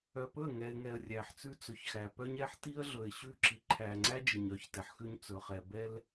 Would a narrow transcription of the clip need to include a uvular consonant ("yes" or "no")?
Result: yes